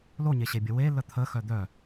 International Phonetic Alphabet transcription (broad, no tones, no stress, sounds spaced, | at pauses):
l o ɲ e ɕ e bʲ ə w e l ə t̪ʰ ə x œ d̪ œ